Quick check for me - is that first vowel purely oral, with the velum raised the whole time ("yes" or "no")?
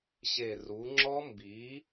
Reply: yes